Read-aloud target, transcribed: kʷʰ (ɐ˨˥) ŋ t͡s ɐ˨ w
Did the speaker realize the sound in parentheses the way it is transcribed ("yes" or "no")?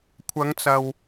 no